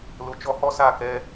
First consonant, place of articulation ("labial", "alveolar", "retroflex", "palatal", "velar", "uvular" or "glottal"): alveolar